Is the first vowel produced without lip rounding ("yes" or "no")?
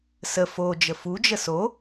yes